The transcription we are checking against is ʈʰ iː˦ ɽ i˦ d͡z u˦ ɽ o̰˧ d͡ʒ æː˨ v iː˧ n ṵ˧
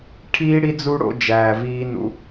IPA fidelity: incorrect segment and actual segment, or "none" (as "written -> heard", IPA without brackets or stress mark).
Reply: none